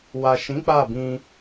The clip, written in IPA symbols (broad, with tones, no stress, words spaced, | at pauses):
wa˨ʃĩ˨˦ k͡pa˦˨bĩ˧